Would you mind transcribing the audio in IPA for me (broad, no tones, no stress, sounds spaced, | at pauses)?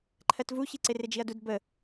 ǃʰ ɜ t v u ç i ǀ ɪ r ɪ d͡ʒ i ɐ̯ d u d b ə